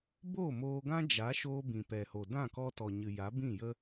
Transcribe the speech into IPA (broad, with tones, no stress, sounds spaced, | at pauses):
b oː˦˨ m oː˧ ɡ ã˦ d͡ʒ a˨˦ ʃ oː˧ b ĩ˨ p ɛ˨ h o˨ d ã˦˨ k ɔ˧ t ɔ˨ ɲ ɨ˨ j a˨˦ b ĩ˦˨ j ə˦